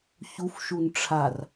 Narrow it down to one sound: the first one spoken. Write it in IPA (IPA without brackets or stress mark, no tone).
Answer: ç